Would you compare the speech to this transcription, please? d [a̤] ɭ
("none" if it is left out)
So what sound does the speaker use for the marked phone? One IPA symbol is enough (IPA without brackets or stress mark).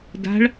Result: a̤